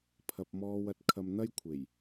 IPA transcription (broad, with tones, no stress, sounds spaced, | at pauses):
pʰ ɐ˧ p̚ m ɔː˧ w ɐ˧ t̚ kʰ ɐ˧ m n̪ ɐ˥ j kʷʰ e˨˩ j